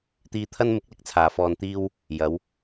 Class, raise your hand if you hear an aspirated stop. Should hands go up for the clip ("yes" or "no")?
yes